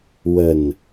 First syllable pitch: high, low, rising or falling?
low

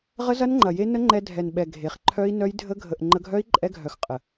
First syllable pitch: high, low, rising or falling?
high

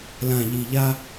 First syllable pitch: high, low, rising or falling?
low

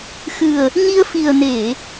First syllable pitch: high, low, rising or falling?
low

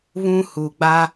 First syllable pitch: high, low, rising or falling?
high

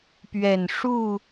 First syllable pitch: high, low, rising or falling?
low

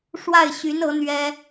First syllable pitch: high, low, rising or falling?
falling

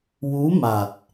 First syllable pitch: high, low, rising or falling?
rising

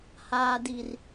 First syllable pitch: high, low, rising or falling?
low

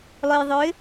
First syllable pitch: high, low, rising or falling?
low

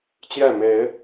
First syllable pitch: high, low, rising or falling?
falling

